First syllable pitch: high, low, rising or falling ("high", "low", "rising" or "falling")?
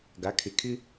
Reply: rising